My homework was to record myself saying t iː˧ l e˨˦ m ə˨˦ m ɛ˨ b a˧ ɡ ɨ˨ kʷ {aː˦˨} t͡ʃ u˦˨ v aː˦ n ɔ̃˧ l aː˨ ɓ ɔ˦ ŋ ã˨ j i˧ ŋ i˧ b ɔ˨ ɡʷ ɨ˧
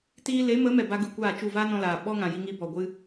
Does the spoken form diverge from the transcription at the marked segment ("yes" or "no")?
no